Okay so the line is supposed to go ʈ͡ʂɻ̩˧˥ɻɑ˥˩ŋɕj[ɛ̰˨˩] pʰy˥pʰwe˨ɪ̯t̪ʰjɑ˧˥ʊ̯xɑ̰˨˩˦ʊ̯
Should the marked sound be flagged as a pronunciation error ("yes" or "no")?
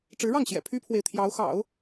no